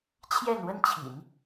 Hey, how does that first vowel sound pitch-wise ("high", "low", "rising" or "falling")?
falling